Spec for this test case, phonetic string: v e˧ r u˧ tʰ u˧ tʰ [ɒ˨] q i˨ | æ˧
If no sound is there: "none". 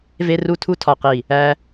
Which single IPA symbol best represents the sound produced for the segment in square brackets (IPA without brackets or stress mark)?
ɒ˨